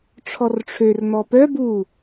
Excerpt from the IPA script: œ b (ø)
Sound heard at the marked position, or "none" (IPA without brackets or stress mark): u